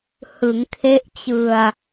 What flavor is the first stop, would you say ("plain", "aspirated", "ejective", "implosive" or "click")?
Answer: aspirated